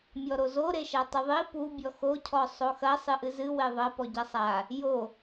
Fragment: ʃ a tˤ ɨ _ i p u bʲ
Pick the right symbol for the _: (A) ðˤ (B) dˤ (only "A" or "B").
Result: A